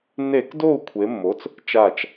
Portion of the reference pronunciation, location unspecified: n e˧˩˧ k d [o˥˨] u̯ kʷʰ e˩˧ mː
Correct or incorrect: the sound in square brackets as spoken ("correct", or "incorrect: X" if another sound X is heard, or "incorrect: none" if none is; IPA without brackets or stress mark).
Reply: correct